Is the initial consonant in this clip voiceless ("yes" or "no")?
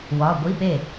no